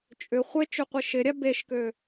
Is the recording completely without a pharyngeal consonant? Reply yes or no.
yes